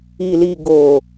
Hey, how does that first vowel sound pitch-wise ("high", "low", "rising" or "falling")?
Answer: low